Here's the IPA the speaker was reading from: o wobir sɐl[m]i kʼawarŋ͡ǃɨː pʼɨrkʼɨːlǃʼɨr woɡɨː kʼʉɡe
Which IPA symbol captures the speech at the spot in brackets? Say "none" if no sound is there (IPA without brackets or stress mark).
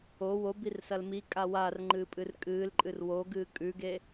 m